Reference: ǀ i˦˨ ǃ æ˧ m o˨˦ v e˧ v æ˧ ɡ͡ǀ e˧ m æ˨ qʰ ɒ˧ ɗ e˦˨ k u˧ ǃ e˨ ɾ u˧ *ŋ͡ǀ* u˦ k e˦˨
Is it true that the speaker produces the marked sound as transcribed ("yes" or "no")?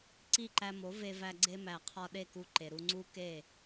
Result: yes